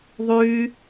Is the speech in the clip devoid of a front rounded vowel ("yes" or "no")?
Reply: no